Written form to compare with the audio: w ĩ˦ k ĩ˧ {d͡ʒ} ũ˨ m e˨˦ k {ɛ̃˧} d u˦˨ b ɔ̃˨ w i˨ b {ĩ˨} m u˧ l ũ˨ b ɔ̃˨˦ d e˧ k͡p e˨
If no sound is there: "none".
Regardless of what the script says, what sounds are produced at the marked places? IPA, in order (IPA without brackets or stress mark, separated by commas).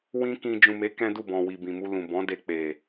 d͡ʒ, ɛ̃˦, ĩ˨